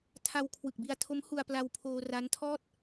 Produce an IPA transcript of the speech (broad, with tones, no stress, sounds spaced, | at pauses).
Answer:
tʰ a˧ w kʰ w ɯ˨˩ k̚ b i˧ a̯ tʰ o˦˥ m h u˧ a̯ p l a˧ w pʰ oː˧ r a˦˥ n tʰ ɔː˥˩ t̚